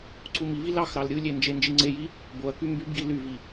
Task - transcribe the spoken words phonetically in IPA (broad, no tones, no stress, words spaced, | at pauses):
ǀumivi lɑxɾɑl ɾʲɯlʲe nd͡ʒend͡ʒiŋ͡ǀeji | boɐ̯ky mbybɡi lyvi